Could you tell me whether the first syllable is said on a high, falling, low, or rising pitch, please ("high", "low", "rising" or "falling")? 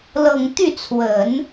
low